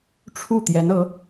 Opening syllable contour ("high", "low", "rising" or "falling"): falling